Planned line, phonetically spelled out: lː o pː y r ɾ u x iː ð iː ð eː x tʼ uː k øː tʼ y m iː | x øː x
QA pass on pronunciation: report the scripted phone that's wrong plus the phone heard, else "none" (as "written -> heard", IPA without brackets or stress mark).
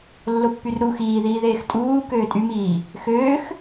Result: none